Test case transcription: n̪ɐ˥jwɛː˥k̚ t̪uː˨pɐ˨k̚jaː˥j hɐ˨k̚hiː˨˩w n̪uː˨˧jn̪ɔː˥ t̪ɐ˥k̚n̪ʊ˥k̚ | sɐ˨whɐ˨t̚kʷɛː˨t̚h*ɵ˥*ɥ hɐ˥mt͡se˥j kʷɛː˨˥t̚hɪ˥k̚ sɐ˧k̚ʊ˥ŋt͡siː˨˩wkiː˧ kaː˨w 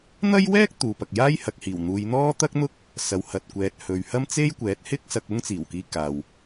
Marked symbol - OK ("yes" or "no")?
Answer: no